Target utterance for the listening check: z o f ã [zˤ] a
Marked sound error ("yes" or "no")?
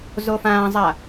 no